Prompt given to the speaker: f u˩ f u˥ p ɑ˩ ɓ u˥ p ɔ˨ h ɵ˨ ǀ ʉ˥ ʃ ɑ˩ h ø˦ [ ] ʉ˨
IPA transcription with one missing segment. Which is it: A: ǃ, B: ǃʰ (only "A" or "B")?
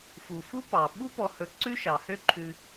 B